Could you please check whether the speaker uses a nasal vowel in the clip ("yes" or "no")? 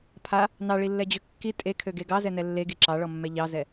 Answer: no